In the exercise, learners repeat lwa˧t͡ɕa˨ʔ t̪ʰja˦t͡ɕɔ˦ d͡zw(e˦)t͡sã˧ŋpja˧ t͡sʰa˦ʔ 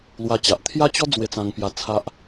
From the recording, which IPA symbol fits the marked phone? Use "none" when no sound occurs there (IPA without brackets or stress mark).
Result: e˧